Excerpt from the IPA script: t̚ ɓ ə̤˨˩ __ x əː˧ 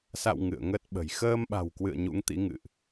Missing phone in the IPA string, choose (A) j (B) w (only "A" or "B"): A